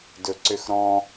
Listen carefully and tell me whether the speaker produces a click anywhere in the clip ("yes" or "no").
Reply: yes